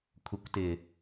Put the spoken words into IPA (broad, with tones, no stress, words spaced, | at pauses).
kʷʰɪ˨kʷtɪ˨